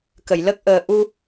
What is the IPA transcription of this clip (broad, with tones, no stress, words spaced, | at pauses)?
kə˨˩˨jlə˦˥k̚ ʔəː˨˩ ʔu˧